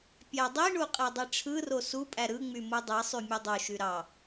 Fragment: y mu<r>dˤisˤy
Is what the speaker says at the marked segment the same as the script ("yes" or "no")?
no